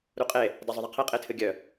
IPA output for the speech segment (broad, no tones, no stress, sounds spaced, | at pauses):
ɾ u qʼ e | d a zˤ ʊ ðˤ ɘ qʰ e qʼ e tʰ ɨ ɡʲ œ